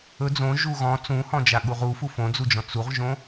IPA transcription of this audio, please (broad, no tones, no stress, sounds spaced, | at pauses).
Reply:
ɵ d͡z õ ʒ u ɣ ɔ̃ t͡s ũ h ɔ̃ d͡ʒ a ɠ u ʁ u f u f õ d͡z u d͡ʒ ɔ̃ t͡s u ʁ ʒ õ